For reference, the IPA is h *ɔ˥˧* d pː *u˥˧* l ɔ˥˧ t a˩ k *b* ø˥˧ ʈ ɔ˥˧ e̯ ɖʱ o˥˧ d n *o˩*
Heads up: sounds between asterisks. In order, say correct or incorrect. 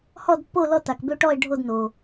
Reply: correct, incorrect, correct, correct

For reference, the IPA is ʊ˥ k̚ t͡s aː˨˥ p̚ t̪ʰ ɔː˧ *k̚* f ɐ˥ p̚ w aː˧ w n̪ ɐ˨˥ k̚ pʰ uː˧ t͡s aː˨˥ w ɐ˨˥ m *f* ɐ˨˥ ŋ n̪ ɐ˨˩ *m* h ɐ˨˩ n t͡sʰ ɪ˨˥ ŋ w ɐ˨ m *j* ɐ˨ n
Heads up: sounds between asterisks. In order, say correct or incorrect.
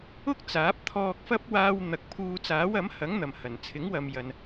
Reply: correct, incorrect, correct, correct

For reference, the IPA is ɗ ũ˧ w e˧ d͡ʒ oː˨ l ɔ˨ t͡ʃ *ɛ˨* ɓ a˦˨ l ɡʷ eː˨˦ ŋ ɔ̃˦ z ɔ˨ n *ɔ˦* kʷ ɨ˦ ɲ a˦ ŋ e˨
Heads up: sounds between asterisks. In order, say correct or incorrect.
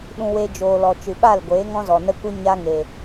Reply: incorrect, incorrect

